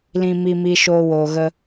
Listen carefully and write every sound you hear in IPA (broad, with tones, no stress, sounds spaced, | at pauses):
l ĩ˧ m i˧ m i˧ ʃ oː˧ w oː˨ ɣ ə˧